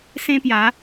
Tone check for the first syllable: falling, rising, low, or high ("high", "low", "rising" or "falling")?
high